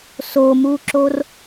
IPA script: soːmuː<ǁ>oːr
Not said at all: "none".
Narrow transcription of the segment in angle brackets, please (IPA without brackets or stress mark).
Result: ǁ